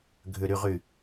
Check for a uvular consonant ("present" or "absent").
present